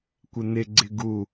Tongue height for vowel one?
high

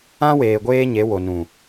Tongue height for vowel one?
low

